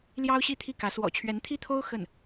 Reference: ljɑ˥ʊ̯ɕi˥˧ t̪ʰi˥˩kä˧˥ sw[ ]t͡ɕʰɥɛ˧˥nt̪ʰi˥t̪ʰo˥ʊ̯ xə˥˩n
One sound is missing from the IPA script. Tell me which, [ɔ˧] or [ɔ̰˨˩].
ɔ̰˨˩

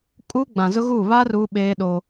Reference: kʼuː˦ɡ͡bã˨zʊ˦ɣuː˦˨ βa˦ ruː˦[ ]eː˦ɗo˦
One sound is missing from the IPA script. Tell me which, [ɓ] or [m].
ɓ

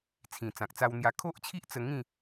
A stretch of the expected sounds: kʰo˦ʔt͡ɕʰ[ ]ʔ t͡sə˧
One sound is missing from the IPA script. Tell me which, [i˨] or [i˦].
i˦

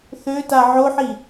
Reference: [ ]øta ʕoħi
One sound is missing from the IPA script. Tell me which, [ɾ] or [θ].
θ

